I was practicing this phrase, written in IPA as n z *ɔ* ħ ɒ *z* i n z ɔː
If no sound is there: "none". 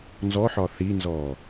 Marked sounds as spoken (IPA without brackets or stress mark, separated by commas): ɔ, θ